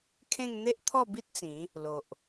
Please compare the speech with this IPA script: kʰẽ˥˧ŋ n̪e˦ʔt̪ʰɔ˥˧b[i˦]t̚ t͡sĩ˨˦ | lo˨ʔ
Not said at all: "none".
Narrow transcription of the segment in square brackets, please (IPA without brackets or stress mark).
i˦